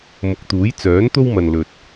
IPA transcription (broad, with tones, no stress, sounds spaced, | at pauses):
m ʊ˨ k̚ t̪ uː˨˥ j t͡s œː˨˥ n t̪ o˥ w m ɐ˨ n l ɵ˨ t̚